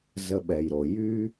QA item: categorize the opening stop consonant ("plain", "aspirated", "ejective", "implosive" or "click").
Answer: implosive